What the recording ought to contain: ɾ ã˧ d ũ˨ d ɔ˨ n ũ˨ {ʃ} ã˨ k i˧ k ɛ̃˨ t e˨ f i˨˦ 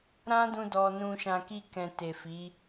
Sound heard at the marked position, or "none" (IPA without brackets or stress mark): ʃ